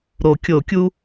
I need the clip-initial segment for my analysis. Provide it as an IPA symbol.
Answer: ɾ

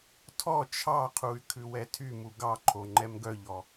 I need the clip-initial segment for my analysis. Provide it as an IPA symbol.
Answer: tʰ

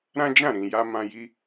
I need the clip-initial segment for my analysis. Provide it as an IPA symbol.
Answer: ɾ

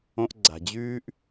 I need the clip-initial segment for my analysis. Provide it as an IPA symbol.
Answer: õ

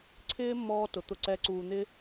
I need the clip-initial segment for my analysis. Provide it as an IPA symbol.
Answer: ǀʰ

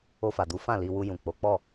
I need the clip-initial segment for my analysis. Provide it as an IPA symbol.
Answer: o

